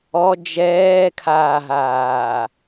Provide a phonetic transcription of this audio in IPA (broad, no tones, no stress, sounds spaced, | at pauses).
ɔ d͡ʒ ɛː kʰ aː ɦ aː